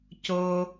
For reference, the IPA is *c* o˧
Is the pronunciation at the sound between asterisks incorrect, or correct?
correct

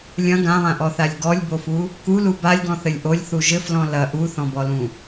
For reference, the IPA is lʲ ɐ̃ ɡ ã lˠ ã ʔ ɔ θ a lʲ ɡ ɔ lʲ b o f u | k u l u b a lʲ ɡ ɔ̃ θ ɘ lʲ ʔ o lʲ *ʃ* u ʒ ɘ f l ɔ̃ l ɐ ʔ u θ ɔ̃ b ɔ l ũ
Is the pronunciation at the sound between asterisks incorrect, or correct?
incorrect: θ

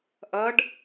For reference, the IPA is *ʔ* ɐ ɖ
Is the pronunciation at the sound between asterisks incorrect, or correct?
correct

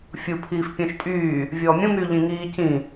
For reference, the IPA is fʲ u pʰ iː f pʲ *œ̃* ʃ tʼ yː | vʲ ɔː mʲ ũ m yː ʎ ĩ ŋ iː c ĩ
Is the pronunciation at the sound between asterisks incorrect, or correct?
correct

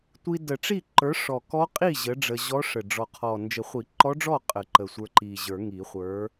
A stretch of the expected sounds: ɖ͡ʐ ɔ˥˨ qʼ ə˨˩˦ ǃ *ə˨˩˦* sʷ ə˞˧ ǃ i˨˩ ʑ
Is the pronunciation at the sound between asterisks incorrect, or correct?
incorrect: ə˨˩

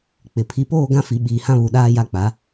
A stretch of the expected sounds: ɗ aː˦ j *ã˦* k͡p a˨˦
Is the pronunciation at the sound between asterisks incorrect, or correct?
incorrect: a˦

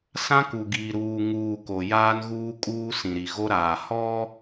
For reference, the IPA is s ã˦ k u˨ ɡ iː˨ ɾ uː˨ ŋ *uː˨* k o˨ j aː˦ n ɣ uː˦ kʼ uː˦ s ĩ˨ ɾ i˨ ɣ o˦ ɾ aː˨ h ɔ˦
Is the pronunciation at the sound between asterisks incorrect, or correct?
correct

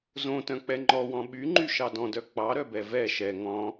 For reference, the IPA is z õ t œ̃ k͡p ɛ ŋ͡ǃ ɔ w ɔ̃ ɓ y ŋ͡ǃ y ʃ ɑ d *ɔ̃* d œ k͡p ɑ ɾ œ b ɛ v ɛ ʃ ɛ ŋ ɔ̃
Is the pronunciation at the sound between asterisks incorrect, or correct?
correct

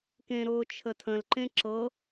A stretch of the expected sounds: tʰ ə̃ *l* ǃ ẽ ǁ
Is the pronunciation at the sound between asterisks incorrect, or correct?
correct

